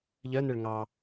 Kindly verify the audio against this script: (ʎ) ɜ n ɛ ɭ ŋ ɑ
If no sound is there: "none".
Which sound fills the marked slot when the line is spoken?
ʎ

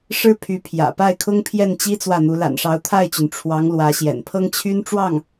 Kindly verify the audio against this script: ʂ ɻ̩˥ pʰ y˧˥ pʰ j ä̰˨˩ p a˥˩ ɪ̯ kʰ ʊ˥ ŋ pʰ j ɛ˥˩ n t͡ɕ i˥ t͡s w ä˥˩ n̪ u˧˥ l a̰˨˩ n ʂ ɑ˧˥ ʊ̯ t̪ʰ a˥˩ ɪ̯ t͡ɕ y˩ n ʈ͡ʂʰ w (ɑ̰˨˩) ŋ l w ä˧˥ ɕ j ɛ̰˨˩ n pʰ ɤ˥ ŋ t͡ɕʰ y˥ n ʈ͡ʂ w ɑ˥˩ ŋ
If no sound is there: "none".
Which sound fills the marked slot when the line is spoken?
ɑ˧˥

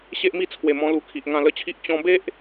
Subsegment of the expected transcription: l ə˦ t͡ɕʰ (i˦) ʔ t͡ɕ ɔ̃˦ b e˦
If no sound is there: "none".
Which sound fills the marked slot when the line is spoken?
i˦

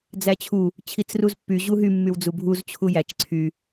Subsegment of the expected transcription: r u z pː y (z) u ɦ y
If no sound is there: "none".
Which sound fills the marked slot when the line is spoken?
ʑ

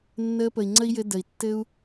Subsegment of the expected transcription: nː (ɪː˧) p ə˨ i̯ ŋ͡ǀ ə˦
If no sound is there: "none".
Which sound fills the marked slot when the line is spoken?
əː˧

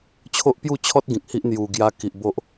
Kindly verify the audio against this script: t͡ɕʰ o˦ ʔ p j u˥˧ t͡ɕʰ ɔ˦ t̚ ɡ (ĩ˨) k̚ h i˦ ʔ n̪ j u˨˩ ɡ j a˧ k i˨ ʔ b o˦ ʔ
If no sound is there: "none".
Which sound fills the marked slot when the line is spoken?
ĩ˨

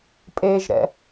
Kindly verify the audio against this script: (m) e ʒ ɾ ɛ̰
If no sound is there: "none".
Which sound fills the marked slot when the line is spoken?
pʼ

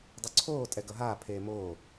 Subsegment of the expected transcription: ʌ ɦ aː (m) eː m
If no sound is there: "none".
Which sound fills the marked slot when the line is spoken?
pʰ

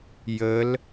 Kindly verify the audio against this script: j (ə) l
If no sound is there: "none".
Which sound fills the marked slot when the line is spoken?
ə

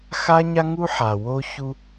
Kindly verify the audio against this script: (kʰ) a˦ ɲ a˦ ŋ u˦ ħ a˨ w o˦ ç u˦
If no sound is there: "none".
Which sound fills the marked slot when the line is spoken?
x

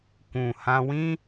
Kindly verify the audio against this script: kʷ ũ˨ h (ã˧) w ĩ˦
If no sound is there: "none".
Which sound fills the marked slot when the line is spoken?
ã˧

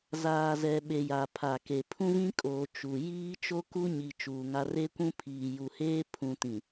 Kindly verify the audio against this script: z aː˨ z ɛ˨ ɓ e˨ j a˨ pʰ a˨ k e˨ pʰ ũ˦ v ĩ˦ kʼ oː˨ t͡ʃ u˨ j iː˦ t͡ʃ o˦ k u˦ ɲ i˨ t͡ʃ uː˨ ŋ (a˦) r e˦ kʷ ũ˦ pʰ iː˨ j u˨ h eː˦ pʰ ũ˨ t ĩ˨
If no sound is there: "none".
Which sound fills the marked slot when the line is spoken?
a˦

